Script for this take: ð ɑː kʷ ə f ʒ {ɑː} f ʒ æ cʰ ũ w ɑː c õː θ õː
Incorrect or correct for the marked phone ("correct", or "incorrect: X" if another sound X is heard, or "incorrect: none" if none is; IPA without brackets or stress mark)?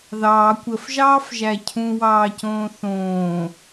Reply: correct